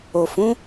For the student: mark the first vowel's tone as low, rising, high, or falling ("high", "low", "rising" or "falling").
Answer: low